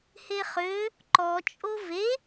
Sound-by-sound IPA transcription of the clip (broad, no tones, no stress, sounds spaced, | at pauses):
h e χ ø | ǃ ɔ t͡ʃʼ o v e